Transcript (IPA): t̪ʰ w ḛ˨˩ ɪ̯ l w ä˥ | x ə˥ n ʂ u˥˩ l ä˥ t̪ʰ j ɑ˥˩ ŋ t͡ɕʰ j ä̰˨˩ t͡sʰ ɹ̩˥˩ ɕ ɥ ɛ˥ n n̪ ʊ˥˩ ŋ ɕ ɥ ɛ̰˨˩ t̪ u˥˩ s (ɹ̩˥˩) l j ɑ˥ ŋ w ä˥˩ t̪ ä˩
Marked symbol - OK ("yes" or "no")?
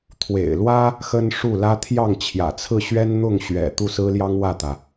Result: no